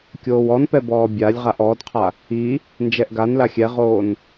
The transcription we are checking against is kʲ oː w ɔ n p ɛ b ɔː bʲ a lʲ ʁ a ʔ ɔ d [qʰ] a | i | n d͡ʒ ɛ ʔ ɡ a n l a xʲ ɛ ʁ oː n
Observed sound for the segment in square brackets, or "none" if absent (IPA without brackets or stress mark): qʰ